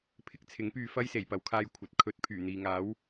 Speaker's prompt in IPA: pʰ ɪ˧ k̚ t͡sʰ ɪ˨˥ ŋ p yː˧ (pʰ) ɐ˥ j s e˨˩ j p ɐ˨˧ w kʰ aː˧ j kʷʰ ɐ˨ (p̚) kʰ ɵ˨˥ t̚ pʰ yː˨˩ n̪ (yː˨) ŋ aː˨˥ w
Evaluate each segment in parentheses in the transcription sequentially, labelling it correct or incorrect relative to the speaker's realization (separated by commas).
incorrect, incorrect, incorrect